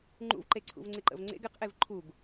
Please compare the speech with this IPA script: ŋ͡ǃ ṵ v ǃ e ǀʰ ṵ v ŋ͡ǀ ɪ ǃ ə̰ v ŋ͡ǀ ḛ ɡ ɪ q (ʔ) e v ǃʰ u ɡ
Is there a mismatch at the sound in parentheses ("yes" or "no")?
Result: no